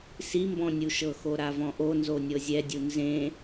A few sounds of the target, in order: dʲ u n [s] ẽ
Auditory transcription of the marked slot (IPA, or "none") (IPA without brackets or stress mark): z